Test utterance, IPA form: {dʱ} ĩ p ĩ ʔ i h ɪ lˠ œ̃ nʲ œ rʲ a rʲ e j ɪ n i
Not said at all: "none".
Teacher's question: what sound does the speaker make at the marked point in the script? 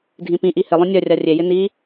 dʱ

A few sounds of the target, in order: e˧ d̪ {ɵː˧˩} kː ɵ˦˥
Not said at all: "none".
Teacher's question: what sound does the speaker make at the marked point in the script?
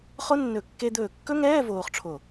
ɵː˧˩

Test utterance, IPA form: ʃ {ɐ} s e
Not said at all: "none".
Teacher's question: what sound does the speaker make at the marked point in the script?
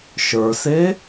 ə˞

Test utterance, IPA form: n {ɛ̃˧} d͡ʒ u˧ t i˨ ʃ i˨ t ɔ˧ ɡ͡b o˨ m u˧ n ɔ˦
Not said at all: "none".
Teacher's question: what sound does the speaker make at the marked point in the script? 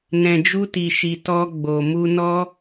ɛ̃˨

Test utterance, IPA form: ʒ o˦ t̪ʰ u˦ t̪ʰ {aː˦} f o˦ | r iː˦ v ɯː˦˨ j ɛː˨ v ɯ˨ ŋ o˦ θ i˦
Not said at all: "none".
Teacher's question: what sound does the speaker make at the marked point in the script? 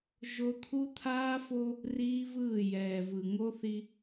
aː˦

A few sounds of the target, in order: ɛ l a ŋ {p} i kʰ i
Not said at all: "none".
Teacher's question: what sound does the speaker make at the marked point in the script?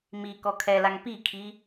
p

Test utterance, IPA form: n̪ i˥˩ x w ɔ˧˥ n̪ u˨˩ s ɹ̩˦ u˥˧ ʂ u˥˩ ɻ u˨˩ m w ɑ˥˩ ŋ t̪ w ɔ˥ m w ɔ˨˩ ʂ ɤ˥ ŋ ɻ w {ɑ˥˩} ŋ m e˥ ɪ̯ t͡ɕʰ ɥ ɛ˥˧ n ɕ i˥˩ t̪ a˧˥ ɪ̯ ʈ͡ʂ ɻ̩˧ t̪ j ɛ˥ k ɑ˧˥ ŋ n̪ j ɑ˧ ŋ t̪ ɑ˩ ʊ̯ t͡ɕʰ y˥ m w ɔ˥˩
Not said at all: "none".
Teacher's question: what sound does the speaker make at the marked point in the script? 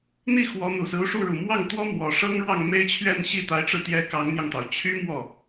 ɑ˥˩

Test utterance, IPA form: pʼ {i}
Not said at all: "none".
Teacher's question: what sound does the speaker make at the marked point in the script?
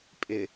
ɪ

